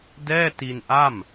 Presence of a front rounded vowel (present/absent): absent